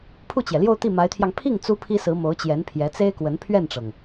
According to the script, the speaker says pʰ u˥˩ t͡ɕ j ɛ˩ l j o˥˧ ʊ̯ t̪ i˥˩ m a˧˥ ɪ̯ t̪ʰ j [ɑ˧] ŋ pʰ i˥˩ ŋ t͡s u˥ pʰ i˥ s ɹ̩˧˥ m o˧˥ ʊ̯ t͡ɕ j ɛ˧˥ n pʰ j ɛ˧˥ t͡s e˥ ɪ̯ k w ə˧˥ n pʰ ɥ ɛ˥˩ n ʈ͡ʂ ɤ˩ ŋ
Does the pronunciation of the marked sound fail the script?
no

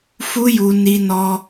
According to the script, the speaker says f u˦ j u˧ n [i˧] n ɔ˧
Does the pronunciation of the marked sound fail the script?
no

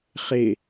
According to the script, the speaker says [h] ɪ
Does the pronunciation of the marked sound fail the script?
yes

